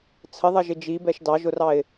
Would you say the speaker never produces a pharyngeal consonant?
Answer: yes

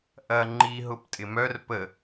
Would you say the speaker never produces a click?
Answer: no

